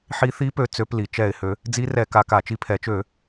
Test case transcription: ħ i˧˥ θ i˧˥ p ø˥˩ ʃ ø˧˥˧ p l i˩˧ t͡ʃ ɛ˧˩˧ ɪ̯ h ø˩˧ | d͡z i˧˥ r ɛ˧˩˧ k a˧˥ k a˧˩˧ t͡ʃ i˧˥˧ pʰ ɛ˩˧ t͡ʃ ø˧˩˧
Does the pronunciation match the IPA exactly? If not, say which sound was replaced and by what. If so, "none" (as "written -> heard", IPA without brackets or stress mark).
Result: ʃ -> t͡s